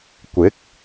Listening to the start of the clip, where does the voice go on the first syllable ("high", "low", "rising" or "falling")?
rising